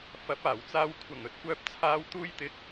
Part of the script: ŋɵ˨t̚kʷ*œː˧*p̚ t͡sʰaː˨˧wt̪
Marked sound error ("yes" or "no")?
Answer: no